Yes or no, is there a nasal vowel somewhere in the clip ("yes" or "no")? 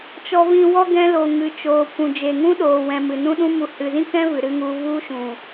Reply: yes